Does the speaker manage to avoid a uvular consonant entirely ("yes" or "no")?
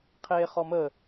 no